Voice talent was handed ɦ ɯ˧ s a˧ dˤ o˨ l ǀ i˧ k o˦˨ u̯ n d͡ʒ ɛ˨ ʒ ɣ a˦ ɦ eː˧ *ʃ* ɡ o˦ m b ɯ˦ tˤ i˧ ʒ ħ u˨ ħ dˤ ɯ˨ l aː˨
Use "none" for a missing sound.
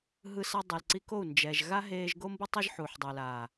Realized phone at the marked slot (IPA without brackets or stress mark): ʒ